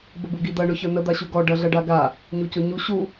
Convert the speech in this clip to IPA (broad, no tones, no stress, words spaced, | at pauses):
bəbuɡid̪ɐ ɳʊçə˞nə d̪aɕuɡɔ ɖɐɮɐɖaɡa | ɲucʊɲu ɕu